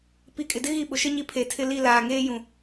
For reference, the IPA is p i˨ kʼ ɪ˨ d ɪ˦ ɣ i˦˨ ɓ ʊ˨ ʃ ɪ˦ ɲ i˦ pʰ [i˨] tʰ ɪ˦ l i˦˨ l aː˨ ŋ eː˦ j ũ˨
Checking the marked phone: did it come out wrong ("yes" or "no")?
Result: yes